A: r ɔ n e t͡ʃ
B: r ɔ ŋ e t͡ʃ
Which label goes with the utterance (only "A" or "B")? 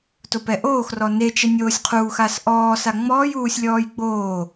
A